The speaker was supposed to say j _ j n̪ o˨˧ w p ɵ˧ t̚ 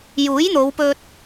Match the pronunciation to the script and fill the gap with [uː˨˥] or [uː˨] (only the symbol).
uː˨˥